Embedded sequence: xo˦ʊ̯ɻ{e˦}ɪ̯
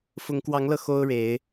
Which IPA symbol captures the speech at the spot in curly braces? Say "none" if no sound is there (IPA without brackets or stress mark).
e˨˦